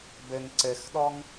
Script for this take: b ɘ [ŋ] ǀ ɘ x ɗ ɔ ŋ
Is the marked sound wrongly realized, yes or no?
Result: no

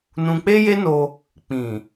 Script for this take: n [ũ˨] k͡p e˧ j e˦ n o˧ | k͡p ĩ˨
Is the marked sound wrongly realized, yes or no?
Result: no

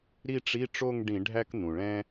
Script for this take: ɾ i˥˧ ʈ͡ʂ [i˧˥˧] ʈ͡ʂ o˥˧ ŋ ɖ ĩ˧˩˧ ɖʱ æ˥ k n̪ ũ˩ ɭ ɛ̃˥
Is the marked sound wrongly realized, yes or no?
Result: no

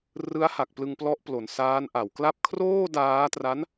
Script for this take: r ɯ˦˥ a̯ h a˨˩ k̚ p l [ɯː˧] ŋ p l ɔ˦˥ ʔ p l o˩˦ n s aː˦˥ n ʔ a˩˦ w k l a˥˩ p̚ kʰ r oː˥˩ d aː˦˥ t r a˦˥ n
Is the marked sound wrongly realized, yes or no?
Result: yes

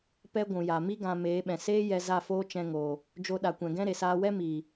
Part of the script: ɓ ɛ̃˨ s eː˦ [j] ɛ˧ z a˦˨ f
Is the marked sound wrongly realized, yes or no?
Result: no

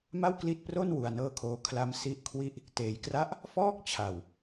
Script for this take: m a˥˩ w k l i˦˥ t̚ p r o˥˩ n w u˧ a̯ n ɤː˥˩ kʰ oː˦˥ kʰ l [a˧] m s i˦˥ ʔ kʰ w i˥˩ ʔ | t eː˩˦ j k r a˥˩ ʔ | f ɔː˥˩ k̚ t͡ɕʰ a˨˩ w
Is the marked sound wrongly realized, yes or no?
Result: yes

